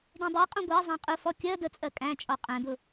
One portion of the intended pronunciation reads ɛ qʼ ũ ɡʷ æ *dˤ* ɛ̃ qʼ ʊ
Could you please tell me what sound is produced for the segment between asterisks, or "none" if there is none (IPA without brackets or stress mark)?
zˤ